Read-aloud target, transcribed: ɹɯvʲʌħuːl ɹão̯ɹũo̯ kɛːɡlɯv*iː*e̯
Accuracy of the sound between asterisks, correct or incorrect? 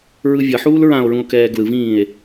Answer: incorrect